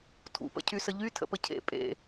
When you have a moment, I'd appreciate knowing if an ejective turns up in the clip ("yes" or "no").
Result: yes